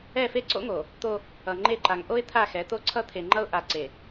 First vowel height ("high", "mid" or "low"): mid